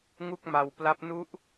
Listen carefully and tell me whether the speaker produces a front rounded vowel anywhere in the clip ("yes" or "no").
no